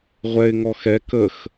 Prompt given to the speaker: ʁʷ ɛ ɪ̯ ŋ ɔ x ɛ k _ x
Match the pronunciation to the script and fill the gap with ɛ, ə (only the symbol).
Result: ə